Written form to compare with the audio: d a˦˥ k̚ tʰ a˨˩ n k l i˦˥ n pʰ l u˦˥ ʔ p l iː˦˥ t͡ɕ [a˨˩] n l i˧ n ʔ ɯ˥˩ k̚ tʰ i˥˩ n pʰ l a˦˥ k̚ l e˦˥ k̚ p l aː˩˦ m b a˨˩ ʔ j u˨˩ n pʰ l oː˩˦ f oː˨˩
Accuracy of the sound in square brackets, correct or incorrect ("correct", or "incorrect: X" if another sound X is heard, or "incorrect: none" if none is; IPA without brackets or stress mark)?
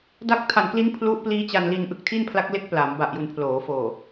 incorrect: a˧